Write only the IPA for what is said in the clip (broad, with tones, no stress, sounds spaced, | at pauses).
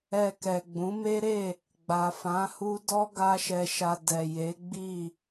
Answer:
ɛ˧ k ɛ˨ ɡ͡b ũ˨˦ m e˦ ɾ e˦˨ | ɡ͡b a˨ f ã˨˦ h u˦ d ɔ˦ ɡ a˦ ʃ ɛ˧ ʃ a˧ d ɛ˨ j e˨˦ ɡ͡b i˦˨